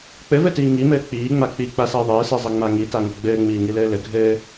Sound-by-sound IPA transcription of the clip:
k͡p ɘ v ɘ t iː ŋ i m ɘː k͡p iː ŋ͡m a k͡p i k͡p a s ɘː ðˤ ɘː s e zˤ ɘ ŋ͡m a ŋ i t a ŋ ɘ ɡ͡b ɘː ŋ͡m iː ŋ i l ɘː l ɘ ɡʱ ɘː

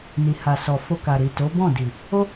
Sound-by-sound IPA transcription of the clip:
n i˨ h a˨ s ɔ˨ f o˧ k a˨ ɾ i˨ t o˨˦ b ɔ̃˦˨ d i˨ | o˦

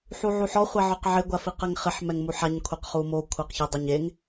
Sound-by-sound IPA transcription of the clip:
ħ u ʕ u ħ ɔ χʷ ɛ ʕ ɔ q ʕ ɪ ɡʷ a f i q ɛ ŋ χ ɪ ħ m ɛ ŋ m u ħ a ɲ kʷʰ e q χ u m o kʷʰ ɛ q ç ɪ dˤ ʊ ɲ e ŋ

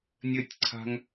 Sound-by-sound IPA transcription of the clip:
nʲ ɘ tʲ ǀʰ a̤ ŋ

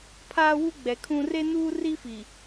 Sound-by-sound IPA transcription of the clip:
pʰ aː˦ w u˦ ɡ͡b ɛ˨ kʰ ũ˦ r e˦ n uː˦ r i˦ f i˨

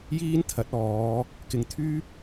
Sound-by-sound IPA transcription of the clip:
j iː˥ n t̪ʰ ɐ˨˥ t̚ ɔː˨˧ | k ɪ˨ ŋ t̪ʰ yː˥ p̚

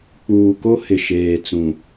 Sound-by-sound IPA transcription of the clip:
k͡p uː˨ k o˦ h ɪ˨ ʃ eː˨ t͡s ũ˨

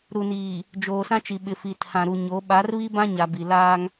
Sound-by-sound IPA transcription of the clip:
ɾ u˨ n iː˨ | d͡ʒ oː˨ s ã˦ t͡ʃ i˨ ɓ ɪ˨ f i˨ tʰ ã˨ ɾ u˨ ɲ o˨˦ ɓ a˨˦ r β i˦ b ã˦ ɲ a˨ b i˨ l aː˦ ŋ

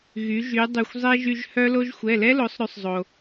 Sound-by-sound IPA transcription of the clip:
ɣ y˩˧ ʒ y˩˧ dˤ y˩ xʷ zˤ e˥ ʒ y˧ ʒ h œ˥ l o˥ ʒ xʷ ɛ˩˧˩ l ɛ˥ l o˩˧ sˤ ɾ ʉ˧ sˤ zˤ o˩

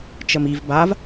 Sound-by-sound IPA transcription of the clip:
t͡ʃ ə m i v b a v

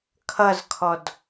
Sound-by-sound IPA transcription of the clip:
kʰ ʌ z kʰ ɔ d

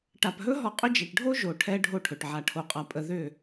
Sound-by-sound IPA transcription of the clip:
ʈ a˨ p ɦ ɵ˦ ɦ ɔ˧ qʼ ʏ˦ d͡ʒ ɛ˨ ʈ ɖʱ o˦ ʒ o˨ ʈʰ ɛ˧ ɖʱ o˦ ʈʰ ɵ˨ ʈ ʕ a˨ ʈʰ o˨˦ qʼ a˨ pʼ ə˦ ð ʏ˦˨

